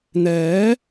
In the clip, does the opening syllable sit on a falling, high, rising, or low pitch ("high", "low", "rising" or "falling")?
rising